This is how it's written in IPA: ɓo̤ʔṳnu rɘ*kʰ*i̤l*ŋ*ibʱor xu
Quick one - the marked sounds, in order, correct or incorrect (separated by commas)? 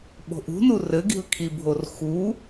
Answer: incorrect, incorrect